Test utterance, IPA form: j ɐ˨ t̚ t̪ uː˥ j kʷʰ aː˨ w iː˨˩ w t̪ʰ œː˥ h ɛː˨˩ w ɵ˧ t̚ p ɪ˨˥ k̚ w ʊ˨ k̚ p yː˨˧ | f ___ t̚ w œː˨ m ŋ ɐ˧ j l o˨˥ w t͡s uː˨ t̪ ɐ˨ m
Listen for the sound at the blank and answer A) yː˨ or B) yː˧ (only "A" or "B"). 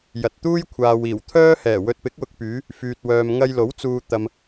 A